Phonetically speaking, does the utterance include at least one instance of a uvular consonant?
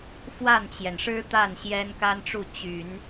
no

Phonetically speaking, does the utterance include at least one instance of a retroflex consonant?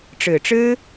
yes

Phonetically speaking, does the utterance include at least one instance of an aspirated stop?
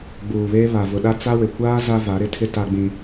yes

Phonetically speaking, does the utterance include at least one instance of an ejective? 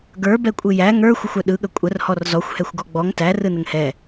yes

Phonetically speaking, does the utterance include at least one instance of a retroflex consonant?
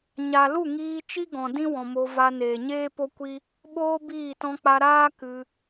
no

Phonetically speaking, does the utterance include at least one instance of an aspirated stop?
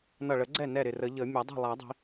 no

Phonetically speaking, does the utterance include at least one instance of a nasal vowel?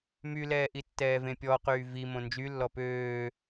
yes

